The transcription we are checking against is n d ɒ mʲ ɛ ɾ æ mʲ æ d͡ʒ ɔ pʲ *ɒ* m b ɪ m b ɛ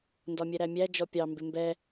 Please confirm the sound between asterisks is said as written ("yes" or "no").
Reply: no